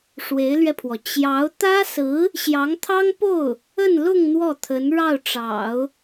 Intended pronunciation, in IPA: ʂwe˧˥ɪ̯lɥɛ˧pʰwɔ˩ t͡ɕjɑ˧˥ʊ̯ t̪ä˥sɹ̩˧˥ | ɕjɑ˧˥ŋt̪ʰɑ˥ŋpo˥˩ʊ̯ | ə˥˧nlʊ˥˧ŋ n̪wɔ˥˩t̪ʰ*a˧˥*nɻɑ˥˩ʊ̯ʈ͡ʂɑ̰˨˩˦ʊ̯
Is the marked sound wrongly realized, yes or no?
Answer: yes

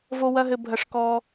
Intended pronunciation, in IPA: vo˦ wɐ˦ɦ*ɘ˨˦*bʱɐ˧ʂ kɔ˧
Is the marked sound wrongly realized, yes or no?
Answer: yes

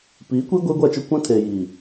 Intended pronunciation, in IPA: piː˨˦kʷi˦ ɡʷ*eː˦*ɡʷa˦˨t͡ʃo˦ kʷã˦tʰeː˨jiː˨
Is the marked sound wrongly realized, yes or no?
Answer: no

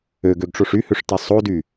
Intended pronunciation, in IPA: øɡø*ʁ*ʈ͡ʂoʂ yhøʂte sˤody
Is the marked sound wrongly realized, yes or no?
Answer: yes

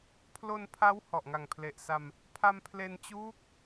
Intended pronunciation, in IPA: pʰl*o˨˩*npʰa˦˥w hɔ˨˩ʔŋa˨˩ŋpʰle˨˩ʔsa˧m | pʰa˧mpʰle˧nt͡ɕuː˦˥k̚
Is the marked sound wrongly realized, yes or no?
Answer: yes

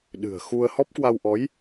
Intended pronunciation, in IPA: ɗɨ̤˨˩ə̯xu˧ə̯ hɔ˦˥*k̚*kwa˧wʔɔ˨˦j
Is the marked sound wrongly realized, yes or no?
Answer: yes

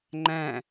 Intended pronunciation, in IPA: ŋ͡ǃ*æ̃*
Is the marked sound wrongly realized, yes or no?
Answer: no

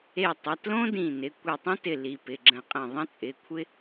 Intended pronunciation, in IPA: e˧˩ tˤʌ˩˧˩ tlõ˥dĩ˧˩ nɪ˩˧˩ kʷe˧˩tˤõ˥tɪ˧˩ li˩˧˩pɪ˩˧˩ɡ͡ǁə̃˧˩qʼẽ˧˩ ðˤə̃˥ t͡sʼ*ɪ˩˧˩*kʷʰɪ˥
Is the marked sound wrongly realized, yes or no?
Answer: no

